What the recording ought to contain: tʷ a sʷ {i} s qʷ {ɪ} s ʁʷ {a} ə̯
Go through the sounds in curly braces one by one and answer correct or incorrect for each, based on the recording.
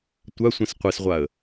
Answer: incorrect, incorrect, correct

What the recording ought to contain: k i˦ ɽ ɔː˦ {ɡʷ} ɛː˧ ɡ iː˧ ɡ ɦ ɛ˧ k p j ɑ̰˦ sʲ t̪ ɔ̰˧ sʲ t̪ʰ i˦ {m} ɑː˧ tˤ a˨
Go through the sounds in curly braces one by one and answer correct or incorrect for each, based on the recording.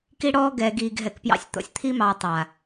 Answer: incorrect, correct

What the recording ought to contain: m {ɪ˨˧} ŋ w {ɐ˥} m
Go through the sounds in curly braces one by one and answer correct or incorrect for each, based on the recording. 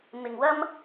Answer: incorrect, correct

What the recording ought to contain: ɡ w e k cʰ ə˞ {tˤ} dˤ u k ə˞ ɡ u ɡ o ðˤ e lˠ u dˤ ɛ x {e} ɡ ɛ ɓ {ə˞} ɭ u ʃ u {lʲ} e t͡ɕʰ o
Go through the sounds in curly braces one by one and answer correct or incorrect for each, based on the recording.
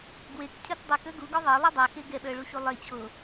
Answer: incorrect, correct, correct, incorrect

